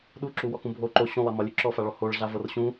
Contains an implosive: yes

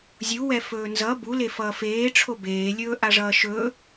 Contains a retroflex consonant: yes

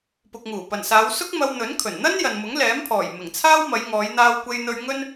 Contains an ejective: no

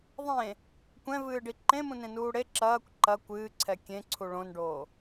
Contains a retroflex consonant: yes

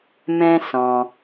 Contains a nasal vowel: yes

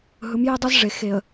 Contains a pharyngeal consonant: no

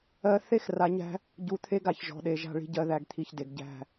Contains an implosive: yes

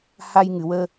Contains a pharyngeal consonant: no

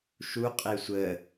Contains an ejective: yes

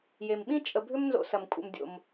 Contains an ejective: yes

